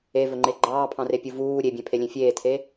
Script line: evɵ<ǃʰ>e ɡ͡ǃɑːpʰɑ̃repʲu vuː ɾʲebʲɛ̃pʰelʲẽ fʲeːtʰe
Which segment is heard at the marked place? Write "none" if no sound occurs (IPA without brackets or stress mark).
ŋ͡ǃ